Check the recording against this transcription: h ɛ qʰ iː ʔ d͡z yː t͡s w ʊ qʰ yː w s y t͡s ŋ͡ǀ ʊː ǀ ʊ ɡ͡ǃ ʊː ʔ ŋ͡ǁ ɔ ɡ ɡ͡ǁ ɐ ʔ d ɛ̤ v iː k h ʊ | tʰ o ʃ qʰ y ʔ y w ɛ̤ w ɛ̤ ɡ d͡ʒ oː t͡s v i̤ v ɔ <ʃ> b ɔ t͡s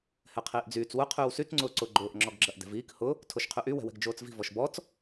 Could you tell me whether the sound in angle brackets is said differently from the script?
no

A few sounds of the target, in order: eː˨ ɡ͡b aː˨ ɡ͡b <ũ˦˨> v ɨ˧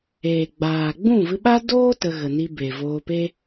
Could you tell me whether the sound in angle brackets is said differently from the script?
no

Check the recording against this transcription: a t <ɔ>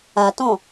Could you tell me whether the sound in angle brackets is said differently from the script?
yes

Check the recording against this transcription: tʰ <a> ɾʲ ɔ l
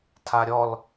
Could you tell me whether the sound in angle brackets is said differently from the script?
no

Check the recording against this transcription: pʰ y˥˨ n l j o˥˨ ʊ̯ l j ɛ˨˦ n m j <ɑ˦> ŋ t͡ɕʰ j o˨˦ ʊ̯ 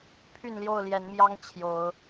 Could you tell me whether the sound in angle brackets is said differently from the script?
no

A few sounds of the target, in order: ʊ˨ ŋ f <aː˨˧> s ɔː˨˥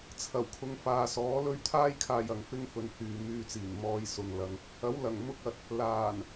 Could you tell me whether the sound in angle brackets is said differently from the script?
yes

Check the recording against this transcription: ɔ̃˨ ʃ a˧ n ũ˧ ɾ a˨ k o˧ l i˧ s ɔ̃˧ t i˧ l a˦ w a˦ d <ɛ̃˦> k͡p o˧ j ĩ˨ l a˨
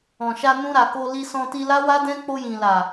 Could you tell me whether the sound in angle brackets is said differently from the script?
no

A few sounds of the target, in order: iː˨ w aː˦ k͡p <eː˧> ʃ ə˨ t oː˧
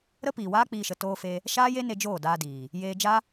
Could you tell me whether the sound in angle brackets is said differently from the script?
yes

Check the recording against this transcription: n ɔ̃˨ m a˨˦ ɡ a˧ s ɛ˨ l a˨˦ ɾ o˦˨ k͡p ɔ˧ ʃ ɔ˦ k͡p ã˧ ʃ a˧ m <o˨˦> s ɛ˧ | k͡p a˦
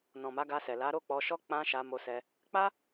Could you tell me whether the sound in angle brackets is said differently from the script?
yes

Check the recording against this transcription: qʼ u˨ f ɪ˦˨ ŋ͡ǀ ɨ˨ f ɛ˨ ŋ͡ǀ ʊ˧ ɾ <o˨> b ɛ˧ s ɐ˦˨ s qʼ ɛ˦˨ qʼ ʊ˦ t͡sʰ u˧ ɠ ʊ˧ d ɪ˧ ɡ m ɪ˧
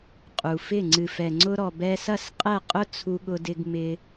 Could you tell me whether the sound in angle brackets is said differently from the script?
yes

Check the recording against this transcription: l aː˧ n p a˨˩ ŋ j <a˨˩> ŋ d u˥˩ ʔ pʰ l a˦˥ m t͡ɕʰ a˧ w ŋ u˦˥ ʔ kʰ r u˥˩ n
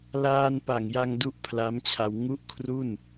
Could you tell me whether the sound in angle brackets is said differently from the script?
yes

